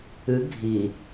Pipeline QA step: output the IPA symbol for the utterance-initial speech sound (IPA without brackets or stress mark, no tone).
ɨ